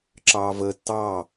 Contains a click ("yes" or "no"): yes